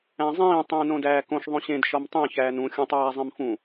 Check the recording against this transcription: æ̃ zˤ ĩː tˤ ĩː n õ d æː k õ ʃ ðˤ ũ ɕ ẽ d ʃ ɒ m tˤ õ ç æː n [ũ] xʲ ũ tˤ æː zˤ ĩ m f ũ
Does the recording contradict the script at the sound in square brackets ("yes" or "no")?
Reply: no